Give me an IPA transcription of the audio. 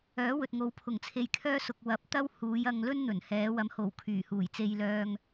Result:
œː˨˥ w ɵ˨ t̚ ŋ o˨˥ w pʰ ʊ˨˩ ŋ t͡sʰ e˨ j kʰ œː˥ s ʊ˨ k̚ w ɐ˨˥ p̚ t̪ ɐ˥ w h uː˨˧ j ɐ˧ ŋ l ɵ˥ n n̪ ɵ˨˩ n h ɛː˨˧ w ɐ˨˧ m h o˨˩ w kʰ yː˨˩ h uː˨˩ j t͡s e˧ j l œː˧ ŋ

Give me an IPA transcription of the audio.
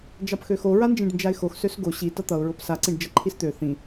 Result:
d͡ʒ ɑ p x ø x o ɹ a n d͡ʒ ĩ ɖ n d͡ʒ a ɪ̯ x o x s ø s ɡ o ɕ i t ʌ t̪ ʌ ʊ̯ ɹ o p s a ǀ ĩ ɖ d͡ʒ ʌ ǃʰ i s t̪ ø θ ĩ

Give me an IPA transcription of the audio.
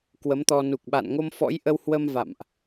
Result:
k w ə˨˦ m t̪ ɔ˧ n u˨˩ k̚ ɓ a̰˧˨ n ŋ o˧ m f ɔ̰˧˥ j ʔ ə˧ w h w ə˧ m v a̰˧˨ m ʔ

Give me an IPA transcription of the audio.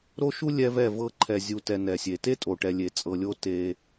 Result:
ɾ o˦ ʃ u˦ lʲ ɛ˦ v ɛ˦˨ v ɤ˦ ǃʰ ɛ˨ zʲ u˨ t ɛ˨ n ɛ˨ sʲ e˨ t e˦ tʼ o˨ ʈ ɛ˨ lʲ e˨ t͡sʼ ɤ˨ lʲ o˦ t e˦

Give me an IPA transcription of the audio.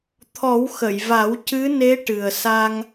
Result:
t̪ʰ ɔ˨˩˦ w x ə˨˩˨ j v a˨˩˦ w c ɨ˧˥ n e˧˥ ʈ ɨ˨˩ ə̯ s a˧ ŋ

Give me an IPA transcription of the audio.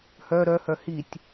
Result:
h œ ɾ œ h œ h i tʲ

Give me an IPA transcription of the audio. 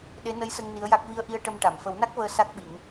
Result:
ɗ e˧˥ n ə˧˥ j s ə˧ ŋ n i˧˥ ə̯ j a˦˥ k̚ v i˧ ə̯ ʔ i˧ ə̯ ʈ ə˧ m ʈ a˨˩˨ m f ə˨˩˦ w n a˦˥ k̚ v əː˧ s a˦˥ k̚ ɓ i˨˩˦ ŋ

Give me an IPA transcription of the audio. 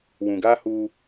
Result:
w ũ˨ ɡ aː˦ h uː˦

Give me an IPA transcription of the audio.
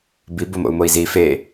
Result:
b i b o m o̰ u̯ m o i̯ z i f e

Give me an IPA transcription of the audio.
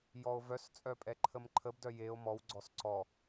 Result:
j ɔ o̯ v œ s t͡sʼ œ pʼ ɛ ǃʰ ə m ǃʰ ə b d œ j e o̯ m ɔ w ɡ͡ǀ ɔ s ǀ ɔ

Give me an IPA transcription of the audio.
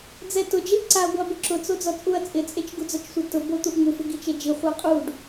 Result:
d͡z ɛ t ʊ d͡ʒ e ʔ ǀ a ɡʷ a b ʊ ǁ ʊ t͡s o d͡z ɔ t͡sʼ u ɐ̯ t͡sʼ ɪ t͡sʼ e t͡ʃ ɡ u d͡z ɔ t͡ʃ sʷ e t ʊ b o t̪ u ʔ ŋ u f ɪ ɡ i t͡ʃ e d͡ʒ i χʷ a qʼ u ɖ

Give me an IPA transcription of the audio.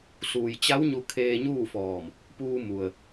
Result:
s uː˩ j t͡ɕ a˧˥ w ɲ u˧ kʰ eː˧ ɲ uː˥˨ f ɔː˧˩ m | p uː˧ m u˩ ə̯

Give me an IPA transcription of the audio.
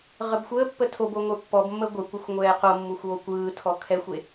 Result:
ʁ ə b xʷ əː pː ə tʰ o b o ŋʷ ə˞ pː ɔ b mː əː ɡʷ ɛ kʷ ə xʷ ŋʷ ɛː q o mː u xʷ oː kʷ ɯː tʰ ɔ kʰ ɛ xʷ e

